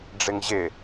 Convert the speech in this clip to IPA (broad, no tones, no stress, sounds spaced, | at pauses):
ɖ͡ʐ ɪ ŋ ʑ ɪ